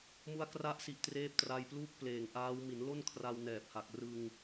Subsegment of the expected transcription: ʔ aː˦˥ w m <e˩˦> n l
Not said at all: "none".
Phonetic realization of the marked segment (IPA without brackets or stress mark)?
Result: i˩˦